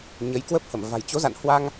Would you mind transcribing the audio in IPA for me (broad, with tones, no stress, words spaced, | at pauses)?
ɲə˨˦j kwə˦˥p̚hə˧˩mva̤˨˩j t͡ɕo˨˦za̰˧˨nhwa˧ŋ